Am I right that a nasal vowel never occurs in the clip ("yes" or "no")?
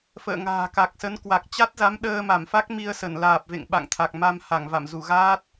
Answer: yes